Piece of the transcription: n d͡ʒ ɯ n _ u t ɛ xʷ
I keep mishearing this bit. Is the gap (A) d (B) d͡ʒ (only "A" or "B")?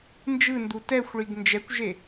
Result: A